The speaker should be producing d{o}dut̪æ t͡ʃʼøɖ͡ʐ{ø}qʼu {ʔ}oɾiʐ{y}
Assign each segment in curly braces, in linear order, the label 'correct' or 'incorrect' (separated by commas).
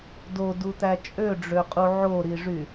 correct, correct, incorrect, correct